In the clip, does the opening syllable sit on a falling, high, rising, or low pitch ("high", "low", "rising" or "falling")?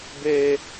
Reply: high